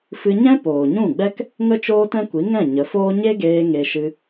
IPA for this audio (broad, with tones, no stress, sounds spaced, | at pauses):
f ɨ˧ ɲ ɛ̃˦ p oː˨ ɲ ũ˦˨ ɡ͡b ɛ˦ k | ŋ ə˦ t͡ʃ oː˦ t ɛ̃˦ kʷ i˨˦ ŋ ɛ̃˦˨ ɲ ə˨˦ f oː˦ ɲ e˦ ɡ eː˧ ŋ e˧ ʃ ɨ˧